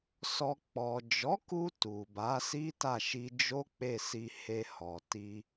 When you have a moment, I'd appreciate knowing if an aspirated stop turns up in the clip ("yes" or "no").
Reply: no